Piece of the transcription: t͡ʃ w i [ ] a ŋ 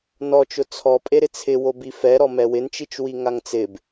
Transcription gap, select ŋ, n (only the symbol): ŋ